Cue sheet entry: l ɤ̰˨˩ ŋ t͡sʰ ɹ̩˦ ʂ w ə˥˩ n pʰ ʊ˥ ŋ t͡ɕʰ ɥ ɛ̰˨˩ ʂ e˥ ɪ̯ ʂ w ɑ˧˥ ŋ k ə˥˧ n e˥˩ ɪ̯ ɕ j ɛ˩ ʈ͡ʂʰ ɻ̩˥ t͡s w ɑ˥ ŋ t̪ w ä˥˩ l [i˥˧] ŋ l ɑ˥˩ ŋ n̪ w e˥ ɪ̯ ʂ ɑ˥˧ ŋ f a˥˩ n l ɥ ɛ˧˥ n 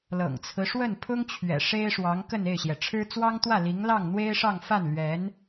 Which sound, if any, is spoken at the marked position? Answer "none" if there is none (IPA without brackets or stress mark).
i˧˥